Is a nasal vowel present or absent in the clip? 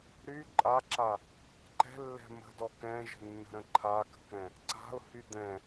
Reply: present